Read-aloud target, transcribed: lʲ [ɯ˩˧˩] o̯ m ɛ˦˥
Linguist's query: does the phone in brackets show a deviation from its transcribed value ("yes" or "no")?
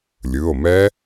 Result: no